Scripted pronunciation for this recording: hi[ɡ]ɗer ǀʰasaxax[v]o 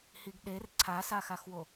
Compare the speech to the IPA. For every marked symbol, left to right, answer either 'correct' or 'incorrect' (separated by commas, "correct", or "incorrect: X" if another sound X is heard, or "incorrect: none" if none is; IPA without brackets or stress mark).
correct, incorrect: w